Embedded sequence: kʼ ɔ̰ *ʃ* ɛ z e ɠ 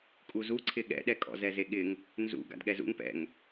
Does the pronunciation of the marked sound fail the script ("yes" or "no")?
yes